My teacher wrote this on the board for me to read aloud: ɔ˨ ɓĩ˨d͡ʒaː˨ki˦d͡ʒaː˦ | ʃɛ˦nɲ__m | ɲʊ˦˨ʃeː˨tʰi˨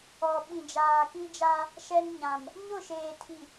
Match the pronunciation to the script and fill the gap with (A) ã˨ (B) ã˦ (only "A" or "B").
A